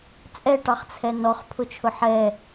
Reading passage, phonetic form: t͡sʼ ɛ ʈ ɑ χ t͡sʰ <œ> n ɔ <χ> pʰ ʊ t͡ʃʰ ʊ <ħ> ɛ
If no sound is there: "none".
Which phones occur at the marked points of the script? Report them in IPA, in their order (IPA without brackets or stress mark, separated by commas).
ɛ, χ, ħ